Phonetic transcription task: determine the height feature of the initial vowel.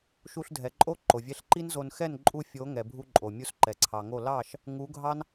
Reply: high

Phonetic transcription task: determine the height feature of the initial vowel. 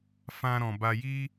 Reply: low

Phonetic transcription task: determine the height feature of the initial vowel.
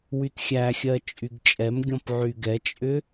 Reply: high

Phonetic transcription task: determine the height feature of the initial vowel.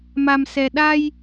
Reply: low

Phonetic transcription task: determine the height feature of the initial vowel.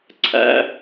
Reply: low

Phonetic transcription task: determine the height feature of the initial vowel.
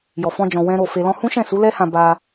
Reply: mid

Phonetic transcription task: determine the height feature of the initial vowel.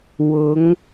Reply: high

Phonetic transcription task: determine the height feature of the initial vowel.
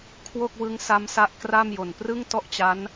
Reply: mid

